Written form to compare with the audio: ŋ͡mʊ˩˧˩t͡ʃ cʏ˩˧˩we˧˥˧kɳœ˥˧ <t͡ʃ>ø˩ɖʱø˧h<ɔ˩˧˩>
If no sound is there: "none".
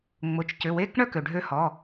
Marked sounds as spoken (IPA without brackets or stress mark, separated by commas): k, ɔ˩˧˩